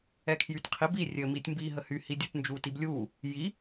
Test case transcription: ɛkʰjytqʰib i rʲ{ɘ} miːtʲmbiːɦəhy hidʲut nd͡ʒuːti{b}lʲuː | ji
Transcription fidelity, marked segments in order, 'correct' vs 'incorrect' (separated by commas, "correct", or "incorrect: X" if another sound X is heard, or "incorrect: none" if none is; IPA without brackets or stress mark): correct, correct